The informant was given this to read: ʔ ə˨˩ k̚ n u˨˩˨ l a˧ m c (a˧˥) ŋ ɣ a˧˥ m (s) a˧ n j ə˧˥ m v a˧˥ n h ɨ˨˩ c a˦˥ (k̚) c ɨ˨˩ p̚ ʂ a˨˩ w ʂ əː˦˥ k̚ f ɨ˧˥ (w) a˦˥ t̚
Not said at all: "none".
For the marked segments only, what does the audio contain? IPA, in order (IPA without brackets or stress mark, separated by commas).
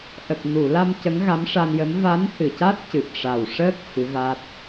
ə˧˥, ʂ, t̚, v